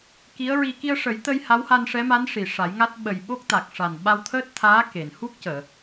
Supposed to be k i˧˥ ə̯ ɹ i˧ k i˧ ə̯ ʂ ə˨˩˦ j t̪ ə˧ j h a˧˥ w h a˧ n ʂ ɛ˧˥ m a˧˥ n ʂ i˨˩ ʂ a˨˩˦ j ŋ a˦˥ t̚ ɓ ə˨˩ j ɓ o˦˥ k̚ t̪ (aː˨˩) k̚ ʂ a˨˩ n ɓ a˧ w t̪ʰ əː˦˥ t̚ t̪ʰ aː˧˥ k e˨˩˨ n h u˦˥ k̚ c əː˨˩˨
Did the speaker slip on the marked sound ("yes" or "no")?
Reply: yes